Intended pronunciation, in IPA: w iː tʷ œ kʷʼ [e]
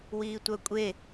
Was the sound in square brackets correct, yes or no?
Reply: yes